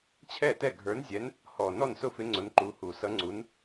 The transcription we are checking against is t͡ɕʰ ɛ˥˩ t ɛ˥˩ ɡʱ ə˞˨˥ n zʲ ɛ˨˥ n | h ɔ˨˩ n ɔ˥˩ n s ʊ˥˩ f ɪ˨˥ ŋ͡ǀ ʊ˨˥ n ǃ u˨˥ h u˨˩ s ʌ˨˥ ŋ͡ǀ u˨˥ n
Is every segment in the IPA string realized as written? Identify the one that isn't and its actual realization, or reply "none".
none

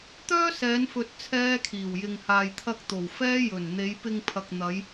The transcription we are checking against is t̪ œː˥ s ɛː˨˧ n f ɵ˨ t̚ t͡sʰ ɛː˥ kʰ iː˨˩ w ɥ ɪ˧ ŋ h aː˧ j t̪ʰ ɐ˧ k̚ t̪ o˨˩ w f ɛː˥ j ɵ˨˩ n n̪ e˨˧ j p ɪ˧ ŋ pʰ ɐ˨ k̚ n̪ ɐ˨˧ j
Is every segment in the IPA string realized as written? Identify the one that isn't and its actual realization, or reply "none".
ɥ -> j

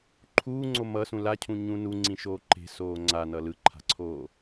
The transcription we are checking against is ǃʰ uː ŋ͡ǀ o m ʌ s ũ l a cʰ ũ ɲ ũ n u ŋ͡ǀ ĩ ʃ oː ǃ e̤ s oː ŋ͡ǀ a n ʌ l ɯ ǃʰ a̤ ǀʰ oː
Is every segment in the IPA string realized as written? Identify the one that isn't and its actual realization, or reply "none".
none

